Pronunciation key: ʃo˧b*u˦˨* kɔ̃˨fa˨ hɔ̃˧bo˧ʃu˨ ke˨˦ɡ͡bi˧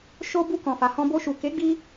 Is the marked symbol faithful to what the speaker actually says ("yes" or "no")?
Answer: no